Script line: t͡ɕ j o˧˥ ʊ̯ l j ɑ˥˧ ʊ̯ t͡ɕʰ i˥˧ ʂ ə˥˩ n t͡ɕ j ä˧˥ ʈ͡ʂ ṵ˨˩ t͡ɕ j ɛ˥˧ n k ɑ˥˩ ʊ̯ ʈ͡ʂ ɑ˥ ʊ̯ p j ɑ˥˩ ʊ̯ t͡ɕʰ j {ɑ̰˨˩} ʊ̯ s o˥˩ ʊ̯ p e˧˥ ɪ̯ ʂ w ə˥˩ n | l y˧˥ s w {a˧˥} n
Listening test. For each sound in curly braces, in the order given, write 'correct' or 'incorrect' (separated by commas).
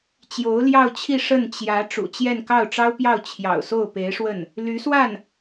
correct, incorrect